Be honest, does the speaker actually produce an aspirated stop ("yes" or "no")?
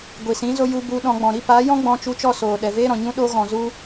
no